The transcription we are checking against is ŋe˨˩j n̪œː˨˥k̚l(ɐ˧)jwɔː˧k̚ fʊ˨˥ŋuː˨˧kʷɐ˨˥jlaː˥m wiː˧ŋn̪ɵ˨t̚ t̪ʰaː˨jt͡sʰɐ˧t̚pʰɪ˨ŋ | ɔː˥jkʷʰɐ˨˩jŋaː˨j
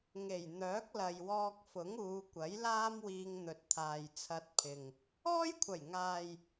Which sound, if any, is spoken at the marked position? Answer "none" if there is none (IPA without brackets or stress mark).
ɐ˨